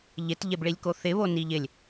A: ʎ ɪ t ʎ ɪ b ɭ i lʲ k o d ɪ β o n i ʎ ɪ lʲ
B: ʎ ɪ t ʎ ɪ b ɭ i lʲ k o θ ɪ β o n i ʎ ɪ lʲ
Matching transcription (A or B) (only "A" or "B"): B